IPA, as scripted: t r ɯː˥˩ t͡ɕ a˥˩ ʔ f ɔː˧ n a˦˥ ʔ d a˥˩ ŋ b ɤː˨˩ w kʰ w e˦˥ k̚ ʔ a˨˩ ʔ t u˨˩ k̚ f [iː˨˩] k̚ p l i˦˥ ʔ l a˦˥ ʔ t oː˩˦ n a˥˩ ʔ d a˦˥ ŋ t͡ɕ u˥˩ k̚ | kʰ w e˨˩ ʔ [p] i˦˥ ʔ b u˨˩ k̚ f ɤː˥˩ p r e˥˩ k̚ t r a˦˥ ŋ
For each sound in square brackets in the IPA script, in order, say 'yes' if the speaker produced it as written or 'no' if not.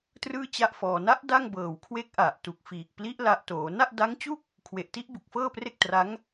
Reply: yes, no

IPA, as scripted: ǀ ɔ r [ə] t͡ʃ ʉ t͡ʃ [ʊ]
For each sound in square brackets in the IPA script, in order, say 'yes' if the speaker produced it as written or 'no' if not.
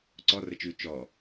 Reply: yes, no

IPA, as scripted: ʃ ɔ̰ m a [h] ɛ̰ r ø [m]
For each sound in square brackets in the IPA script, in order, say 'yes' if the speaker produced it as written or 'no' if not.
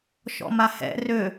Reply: yes, no

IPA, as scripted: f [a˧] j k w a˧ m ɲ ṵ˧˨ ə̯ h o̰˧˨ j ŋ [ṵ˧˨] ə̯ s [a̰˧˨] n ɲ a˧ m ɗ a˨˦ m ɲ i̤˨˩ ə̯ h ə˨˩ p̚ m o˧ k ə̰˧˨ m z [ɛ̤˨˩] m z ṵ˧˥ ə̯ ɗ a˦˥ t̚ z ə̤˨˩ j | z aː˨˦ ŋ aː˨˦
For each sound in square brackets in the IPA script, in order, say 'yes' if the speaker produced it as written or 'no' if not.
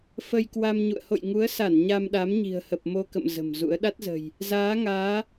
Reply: no, no, no, no

